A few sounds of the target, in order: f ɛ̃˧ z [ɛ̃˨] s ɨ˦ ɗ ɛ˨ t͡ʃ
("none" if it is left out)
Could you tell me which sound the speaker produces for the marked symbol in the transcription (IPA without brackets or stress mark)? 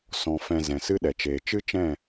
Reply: ɛ̃˨